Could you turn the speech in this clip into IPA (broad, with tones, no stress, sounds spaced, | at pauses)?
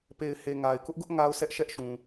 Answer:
p e˨ ɪ̯ h e˨ ŋ a˨ ɪ̯ k ʊ˦ ʔ ɡ ʊ˦ ʔ ŋ a˦ ʊ̯ s ɛ˦ ʔ ʃ ɛ˦ ʔ ʃ ũ˨